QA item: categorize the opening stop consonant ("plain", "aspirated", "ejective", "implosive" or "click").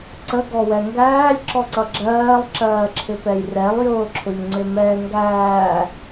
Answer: click